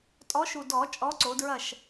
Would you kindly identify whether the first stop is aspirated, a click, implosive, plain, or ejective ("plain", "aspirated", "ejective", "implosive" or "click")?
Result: ejective